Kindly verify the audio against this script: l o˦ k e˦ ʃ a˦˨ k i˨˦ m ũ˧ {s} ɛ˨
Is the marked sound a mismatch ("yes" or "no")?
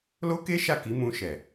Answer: yes